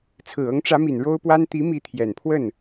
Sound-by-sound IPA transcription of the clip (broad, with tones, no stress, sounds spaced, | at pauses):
t͡sʰ ɹ̩˨˩ ɤ˧˥ ŋ ʈ͡ʂ ä˧˥ m i˨˩ n ɻ o˥ ʊ̯ p w a˥ n t̪ i˧˥ m i˧˥ t̪ʰ j ɛ˨˩ n pʰ w ə˥˩ n